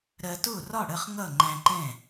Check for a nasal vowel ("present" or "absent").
present